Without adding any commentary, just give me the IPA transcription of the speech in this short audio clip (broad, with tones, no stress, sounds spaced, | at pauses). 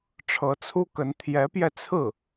ʈ͡ʂʰ ɤ˧˥ t͡sʰ u˥ k ə˧˥ n t̪ʰ j ɛ˧˥ p j ɛ˧ t͡sʰ ɹ̩˥˩